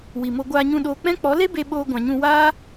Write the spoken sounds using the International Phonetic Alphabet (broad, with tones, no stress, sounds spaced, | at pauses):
w i˨ m o˧ ɡʷ aː˧ ɲ ũ˧ ɗ oː˧ k͡p ɛ̃˦ k͡p ɔ˨˦ l e˦ b e˧ ɓ oː˧ ɡʷ ã˨ ɲ ũ˧ w aː˦